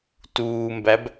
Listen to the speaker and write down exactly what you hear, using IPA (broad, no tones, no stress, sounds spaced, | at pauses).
t uː m b æ b